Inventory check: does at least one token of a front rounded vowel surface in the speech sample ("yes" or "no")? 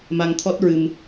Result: no